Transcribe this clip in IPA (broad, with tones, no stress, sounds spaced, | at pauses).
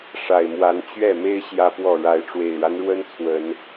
ʂ a˨˩ ɪ̯ m w a˨˦ n t͡ɕ ɥ ɛ˥˨ m e˦ ɪ̯ ɕ j ä˦ p w ɔ˥˨ ɻ a˨˦ ɪ̯ ʈ͡ʂ w e˨˩ ɪ̯ ɻ a˦ n ɻ w ə˦ n t͡sʰ w ə˨˦ n